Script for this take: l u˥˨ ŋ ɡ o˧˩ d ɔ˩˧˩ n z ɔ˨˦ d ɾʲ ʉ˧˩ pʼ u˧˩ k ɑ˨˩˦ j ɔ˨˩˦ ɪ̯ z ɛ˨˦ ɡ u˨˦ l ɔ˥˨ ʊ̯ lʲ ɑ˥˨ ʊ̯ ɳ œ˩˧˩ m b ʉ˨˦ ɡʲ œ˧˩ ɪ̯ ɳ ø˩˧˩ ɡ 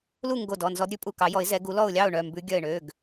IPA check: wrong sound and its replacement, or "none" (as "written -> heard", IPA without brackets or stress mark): none